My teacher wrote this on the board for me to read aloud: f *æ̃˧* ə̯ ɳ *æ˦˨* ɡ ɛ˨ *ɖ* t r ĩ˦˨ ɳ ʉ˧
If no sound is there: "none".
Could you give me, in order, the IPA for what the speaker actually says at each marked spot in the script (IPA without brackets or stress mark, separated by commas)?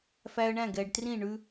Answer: æ˧, æ̃˦˨, ɖ